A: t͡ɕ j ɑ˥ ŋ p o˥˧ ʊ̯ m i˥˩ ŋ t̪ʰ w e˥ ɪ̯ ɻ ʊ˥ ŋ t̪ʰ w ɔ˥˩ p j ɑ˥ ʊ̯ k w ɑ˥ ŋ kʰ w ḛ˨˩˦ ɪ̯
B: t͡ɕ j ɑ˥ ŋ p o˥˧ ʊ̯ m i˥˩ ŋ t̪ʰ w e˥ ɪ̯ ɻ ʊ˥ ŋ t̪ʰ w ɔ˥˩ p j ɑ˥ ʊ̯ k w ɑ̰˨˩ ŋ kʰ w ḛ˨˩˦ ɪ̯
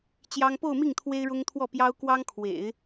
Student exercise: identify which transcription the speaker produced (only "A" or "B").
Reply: A